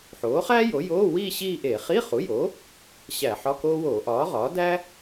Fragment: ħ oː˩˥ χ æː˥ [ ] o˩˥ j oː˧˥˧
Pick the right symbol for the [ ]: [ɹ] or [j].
j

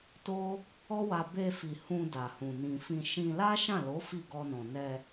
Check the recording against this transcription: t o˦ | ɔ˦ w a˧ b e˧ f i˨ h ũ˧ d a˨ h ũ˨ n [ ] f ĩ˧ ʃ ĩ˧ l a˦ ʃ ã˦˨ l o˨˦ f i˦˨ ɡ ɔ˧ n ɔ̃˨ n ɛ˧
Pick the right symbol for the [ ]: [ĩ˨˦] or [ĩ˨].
ĩ˨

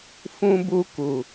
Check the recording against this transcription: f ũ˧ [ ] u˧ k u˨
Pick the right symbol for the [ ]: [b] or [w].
b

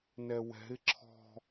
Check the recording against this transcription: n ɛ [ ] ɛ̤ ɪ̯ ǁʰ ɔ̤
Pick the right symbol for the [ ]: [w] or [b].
w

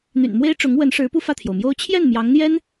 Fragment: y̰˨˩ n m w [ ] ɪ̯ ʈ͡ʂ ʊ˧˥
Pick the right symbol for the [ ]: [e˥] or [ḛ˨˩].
e˥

